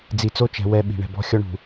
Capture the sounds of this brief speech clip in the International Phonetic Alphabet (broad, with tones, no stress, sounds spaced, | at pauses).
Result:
d͡z i˨ t͡s o˦ t͡ʃ ɛ̤˨ w ɛ˦˨ ɓ i̤˨ ɳ ɛ̤˨ b ɔ̤˦ xʲ ɔ˦ ɳ ṳ˨